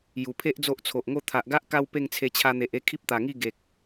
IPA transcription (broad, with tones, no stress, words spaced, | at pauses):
ju˨˩pʰe˦ʔ d͡zo˦ʔt͡sʰo˨ʔŋo˥˧ t̪ʰa˨ʔɡa˦ʔ ka˦wpe˥˧ŋt͡sʰe˧ t͡ɕʰa˧n̪e˨ʔe˥˧ kʰi˦p̚t̪a˨˩ŋi˥˧ ɡe˨k̚